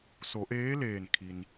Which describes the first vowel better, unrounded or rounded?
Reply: rounded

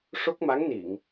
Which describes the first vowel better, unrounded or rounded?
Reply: rounded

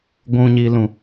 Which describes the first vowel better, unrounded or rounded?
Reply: rounded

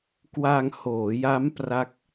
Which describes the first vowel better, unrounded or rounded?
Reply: unrounded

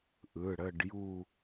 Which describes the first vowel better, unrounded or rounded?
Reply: unrounded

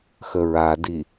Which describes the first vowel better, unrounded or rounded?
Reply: unrounded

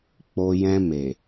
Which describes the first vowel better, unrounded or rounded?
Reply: rounded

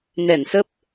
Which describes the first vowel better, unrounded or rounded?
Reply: unrounded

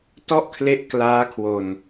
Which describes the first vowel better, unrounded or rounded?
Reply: rounded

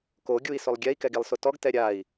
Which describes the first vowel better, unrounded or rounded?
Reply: rounded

